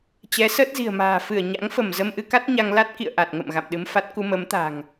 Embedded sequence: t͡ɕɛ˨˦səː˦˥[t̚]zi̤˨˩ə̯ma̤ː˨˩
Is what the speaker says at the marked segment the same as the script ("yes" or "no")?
yes